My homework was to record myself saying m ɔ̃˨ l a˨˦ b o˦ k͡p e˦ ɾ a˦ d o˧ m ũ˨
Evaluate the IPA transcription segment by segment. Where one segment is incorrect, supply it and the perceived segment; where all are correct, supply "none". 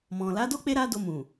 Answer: b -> d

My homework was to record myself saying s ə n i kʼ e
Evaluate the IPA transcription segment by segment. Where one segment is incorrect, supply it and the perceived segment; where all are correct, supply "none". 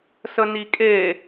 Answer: none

